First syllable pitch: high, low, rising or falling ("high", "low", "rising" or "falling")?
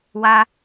high